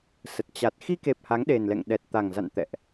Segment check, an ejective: absent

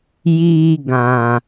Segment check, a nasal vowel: present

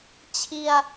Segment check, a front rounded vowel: absent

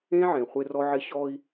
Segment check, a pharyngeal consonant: present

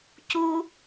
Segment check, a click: absent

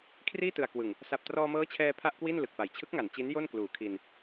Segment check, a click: absent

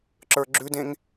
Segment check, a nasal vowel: present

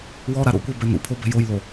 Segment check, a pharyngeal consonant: absent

